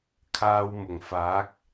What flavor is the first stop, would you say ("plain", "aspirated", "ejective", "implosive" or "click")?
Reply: aspirated